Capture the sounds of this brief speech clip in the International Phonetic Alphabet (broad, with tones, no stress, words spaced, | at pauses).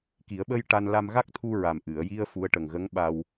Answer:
ki˨˩˦ə̯ɓə˧j ʈa˧n la˧mɣa˦˥k̚ t̪ʰu˧ɹa˨˩m ʔɨ˨˩˨ə̯ji˧ə̯ fu˧˥ə̯ʈə˨˩ŋɣə˧˥ŋɓa˧w